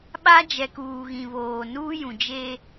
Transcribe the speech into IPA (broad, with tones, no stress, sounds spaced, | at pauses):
ɓ a˦ d͡ʒ ɛ˨ k uː˨ ɣ ĩ˨ β oː˨ n uː˦ j ũ˨ d͡ʒ e˦